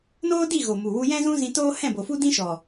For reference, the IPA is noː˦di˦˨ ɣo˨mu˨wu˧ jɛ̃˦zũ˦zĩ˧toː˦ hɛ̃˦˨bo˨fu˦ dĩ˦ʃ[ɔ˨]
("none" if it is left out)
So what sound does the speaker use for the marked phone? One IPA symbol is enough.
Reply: ɔ˨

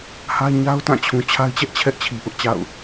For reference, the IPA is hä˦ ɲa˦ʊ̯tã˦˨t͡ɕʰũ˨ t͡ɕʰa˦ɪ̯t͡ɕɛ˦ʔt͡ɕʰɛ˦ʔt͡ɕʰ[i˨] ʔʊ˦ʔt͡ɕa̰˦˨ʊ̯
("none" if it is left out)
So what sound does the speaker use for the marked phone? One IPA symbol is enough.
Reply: i˨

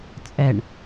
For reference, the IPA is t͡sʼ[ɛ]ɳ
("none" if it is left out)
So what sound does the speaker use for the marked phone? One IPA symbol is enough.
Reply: ɛ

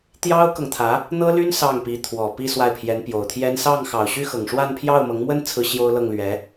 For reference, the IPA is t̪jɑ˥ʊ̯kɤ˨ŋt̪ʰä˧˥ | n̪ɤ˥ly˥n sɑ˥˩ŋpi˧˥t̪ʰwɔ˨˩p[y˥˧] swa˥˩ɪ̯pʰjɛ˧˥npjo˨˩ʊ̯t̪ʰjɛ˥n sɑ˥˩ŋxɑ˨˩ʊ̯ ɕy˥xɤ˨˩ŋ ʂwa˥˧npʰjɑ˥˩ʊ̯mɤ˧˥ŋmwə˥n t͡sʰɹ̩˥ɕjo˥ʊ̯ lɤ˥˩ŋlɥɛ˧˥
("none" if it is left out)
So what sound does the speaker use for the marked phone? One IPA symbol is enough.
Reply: i˥˧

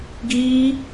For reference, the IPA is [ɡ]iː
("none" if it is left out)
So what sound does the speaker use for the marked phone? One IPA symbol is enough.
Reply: ɡ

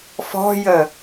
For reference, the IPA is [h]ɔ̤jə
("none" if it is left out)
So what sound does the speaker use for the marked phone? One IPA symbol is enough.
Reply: f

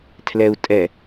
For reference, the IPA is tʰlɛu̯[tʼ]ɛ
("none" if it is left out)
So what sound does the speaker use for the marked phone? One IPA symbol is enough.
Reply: tʼ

